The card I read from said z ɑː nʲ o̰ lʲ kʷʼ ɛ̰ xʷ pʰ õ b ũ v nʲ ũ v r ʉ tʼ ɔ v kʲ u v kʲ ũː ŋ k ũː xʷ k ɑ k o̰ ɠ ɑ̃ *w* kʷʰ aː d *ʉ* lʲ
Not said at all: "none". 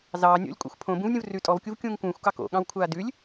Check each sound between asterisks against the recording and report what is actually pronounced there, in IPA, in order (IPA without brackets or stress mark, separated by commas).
w, ʉ